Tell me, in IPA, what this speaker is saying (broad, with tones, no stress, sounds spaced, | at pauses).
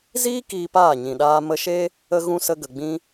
z iː˦ k iː˧ p aː˦˨ ɲ ĩ˨ ɗ aː˧ m ə˧ ʃ e˦ | ə˧ ɣ ũ˧ s ə˧ ɡ ə˨ ɡ͡b ĩ˧